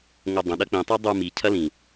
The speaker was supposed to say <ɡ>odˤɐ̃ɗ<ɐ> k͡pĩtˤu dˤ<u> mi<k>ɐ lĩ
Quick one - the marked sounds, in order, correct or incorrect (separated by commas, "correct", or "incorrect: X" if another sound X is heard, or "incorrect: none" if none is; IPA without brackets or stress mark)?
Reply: incorrect: ŋ, correct, correct, incorrect: cʰ